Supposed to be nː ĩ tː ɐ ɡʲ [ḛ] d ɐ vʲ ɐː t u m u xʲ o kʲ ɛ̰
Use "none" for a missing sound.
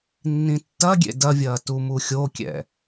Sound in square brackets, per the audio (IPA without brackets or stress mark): ḛ